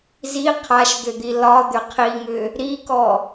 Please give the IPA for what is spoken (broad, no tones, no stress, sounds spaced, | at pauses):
z i qʰ a ʃ d̪ ʏ d̪ i l ɒ d̪ ʏ qʰ i ŋ ʏ | ɾ i k ɔ